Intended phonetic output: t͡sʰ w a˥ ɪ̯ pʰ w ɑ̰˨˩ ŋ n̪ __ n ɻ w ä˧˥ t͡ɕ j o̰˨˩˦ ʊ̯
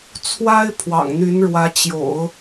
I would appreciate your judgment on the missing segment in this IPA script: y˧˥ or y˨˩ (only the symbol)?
y˧˥